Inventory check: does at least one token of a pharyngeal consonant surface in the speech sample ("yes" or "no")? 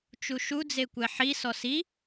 yes